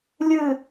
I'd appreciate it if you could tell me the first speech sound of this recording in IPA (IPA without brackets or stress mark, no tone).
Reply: lʲ